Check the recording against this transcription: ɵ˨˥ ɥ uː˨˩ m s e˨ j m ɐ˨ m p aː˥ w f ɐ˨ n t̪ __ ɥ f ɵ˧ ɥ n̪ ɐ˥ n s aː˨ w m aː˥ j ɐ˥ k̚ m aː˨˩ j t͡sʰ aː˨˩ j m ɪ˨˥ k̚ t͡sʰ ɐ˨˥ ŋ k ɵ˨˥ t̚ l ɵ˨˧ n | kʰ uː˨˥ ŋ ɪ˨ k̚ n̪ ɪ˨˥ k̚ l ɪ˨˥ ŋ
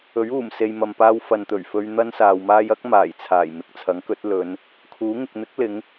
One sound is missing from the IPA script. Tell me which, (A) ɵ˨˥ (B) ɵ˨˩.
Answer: B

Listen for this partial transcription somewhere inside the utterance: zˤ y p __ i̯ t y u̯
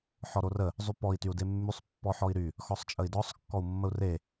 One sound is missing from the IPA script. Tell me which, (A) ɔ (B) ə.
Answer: A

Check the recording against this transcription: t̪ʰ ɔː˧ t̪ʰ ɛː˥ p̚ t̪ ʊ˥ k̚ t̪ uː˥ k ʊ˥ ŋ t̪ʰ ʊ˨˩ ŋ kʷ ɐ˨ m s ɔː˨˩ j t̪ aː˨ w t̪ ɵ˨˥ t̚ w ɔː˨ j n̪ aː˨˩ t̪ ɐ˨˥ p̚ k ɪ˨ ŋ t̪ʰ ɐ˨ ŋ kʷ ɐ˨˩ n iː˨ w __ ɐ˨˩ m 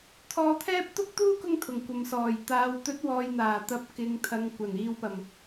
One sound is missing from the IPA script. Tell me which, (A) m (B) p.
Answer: B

